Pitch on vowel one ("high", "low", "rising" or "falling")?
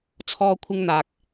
high